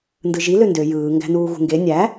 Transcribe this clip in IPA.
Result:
n d ɯ ʒ i l ø n d ø j ɯː ŋ ɡ æ̤ n uː ɣ ṳ ŋ ɡ e nʲ æ

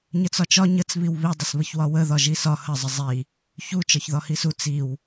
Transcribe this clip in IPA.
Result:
ɲ ə t͡s ɒ t͡ʃ ɒ ɲ ə t͡s β i w β i dˤ ə s β ə ç w ɒ w ə ð ɒ ʒ i s ɒ h ə zˤ ə zˤ i | ç u t͡ʃ ɒ ç ð ɒ h i s u t͡s i w

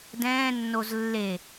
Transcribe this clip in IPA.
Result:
d ɛ̃ː nː o z lː e

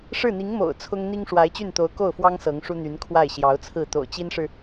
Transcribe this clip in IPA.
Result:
ʂ ɻ̩˥˩ n̪ i˧˥ ŋ m o̰˨˩ ʊ̯ t͡sʰ ʊ˥ ŋ n̪ i˥ ŋ ʂ w a˧˥ ɪ̯ t͡ɕ y˥˩ n t̪ o˧˥ ʊ̯ k o˥˩ ʊ̯ f w ɑ˥ ŋ s ɤ˧˥ ŋ ʂ u˥ n̪ y˧˥ n kʰ w a˥˩ ɪ̯ ɕ j ɑ˧˥ ʊ̯ t͡sʰ ɹ̩˥˩ t̪ o̰˨˩ ʊ̯ t͡ɕ i˥ n ʂ ɻ̩˨

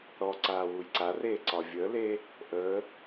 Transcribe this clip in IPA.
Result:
ɾ ɔ ǀ aː w u j ǀ a r eː ǀ ɒ vʲ əː l eː | ʔ əː

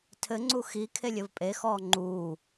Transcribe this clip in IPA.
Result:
tʰ ɘ ŋ͡ǀ u x i kʰ e lʲ ɘ v pʼ e x ɔː ŋ͡ǃ uː

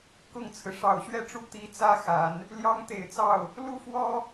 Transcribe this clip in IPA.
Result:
k ʊ˥˩ ŋ t͡sʰ ɹ̩˩ ʂ ɑ˨˩ ʊ̯ ɕ ɥ ɛ˥˧ ʈ͡ʂ u˥˩ t̪ i˧˥ t͡s ä˥ x a˨˩˦ n | l j ɑ˥ ŋ t̪ e˨˩ ɪ̯ t͡s ɑ˥˩ ʊ̯ | l u˥ f w ɔ˥

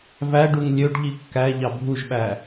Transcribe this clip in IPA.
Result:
v æ ɖ u ŋ lʲ ø ɖ ʎ i kː æ ʎ ɑ bʱ u ʒ ɓ æ

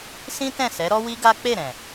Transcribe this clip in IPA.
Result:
s ĩ˦ t ɛ̃˦˨ s ɛ˨˦ ɾ ɔ˦ w i˦ ɡ a˦ k͡p e˦˨ ɾ ɛ̃˨

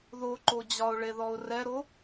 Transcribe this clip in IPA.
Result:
ð o ǃ o d͡ʑ ɒ ʊ̯ ɭ e ð ɔ ʊ̯ r ɛ ɾ o

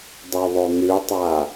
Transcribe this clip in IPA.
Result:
dˤ u ðˤ o n̪ ʉ tˤ a

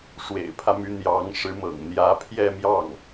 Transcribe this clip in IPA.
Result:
ʂ w ḛ˨˩ ɪ̯ pʰ ä˦ m y˧˥ n̪ j ɑ˧˥ ŋ ʂ ɻ̩˧˥ m ɤ̰˨˩ ŋ n̪ j ä˧˥ pʰ j ɛ˥˧ m j ɑ˥˩ ŋ

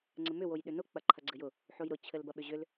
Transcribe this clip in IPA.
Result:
ŋ͡ǀ ɘ m ʏ w o j ɗ ʏ n ʊ k͡p ɐ ǃʰ ɐ ɡ͡ǀ ɘ j ʊ | ħ o j ɾ ʊ t͡ɕʰ ɘ l b ɐ ɓ ʏ ʑ ʏ l

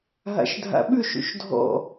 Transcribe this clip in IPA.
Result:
ɦ a̰ ʃ dʱ a̰ ɓ ʉ ʃ ṵ ʃ dʱ ɔ̰

